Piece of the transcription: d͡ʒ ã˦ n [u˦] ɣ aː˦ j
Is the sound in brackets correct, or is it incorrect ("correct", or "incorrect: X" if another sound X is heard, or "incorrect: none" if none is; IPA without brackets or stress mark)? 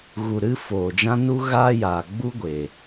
correct